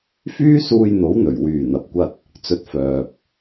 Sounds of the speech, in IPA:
f yː˥ s uː˧ j n̪ o˨˥ w n̪ ɵ˨˩ ɥ w yː˨˩ n̪ ɐ˨ p̚ kʷ ɐ˥ t̚ | t͡s ɵ˧ t̚ f œː˨ p̚

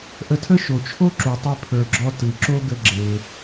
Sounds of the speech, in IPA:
ʔ ə˧ tʰ ə˥ ʃ o˩ t͡ʃʰ o˥ ǁ u˩ tˤ e˧ pʰ ə˞˩ ɡ͡ǁ ɔ˧ t ɯ˩ ǁ o˥ ɡ ə˧ ɡ͡ǁ e˩

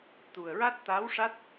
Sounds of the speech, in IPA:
t̪ u˨˩ ə̯ ɹ a˦˥ t̚ t̪ a˧˥ w ʂ a˦˥ t̚

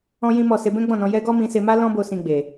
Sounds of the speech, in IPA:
ɔ̃˦ j ĩ˦ m ɔ˦˨ s e˧ b ɛ̃˦ ɡ͡b ɔ̃˦˨ n ɔ̃˧ j ɛ˧ ɡ ɔ˦ m ĩ˧ s e˧ m a˦ l ɔ̃˦ b o˧ s ĩ˧ ɡ͡b e˨

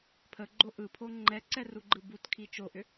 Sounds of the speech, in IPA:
pʰ ə ɡ͡ǃ o ʔ ɯ pʰ o ŋ͡ǃ ɛ ǀ ɛ r u ɡ͡ǃ ɯ b u t kʰ i t͡ʃ o ʔ ʏ

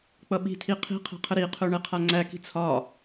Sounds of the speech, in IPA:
k͡p ʌ ɓ i̤ tʰ i qʰ i̤ qʰ a̤ qʰ ə ɾ i qʰ œ ɳ ɛ qʰ a ŋ͡ǀ æ k i̤ t͡sʰ ɒ

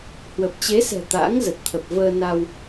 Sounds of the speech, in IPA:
h w ə˨˩ p̚ t͡ɕ e˨˦ s ɛ̤˨˩ t̪ a̰˧˥ ŋ z ə˨˩ t̚ t̪ʰ ə˨˩ p̚ v əː˧ n a˧ w

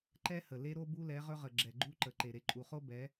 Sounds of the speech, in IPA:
ǃ ɛ˦ h ə˨ l e˦ ɾ o˦ b u˦ l ɛ˨˦ ʁ ɵ˦ ʁ ə˨ ɡ͡ǁ ɛ˨ ɡ͡ǃ u˦ ǃ ə˨ ǃ e˨ ɾ e˨ ǃʼ u˨ χ o˦ b ɛ˨˦

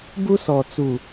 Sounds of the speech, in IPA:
b u˦ s ɔ˨ t͡s u˨

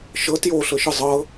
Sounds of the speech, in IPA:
ʃ ɤ t j o ɬ ɤ ʃ ɯ zˤ ɤ

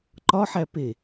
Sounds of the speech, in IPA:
ǃ ɒ ħ æ p e

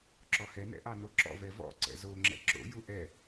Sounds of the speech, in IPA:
ǁ ɔ h ɛ n ɛ̰ ʔ ɑ n o ǁ ɔ̰ v ɛ v ɔ̰ ǀ ɛ̰ z o ŋ͡ǁ ɛ̰ ǁ o̰ j u ʔ ɛ

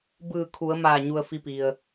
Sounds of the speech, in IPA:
b ɯː˧˩ kʰ u˩˧ ə̯ m aː˧˩ ɲ u˩ ə̯ f i˧ p i˩ ə̯

